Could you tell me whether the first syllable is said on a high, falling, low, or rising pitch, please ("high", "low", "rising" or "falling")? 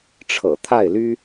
low